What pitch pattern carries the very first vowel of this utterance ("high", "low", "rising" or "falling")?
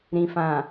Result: low